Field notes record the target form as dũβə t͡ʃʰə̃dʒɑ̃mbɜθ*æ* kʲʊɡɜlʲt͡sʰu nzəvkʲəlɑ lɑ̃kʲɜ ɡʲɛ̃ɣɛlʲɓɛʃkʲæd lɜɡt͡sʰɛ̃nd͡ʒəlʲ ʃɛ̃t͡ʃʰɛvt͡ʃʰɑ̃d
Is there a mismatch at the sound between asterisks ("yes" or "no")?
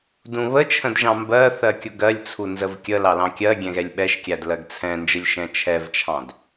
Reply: yes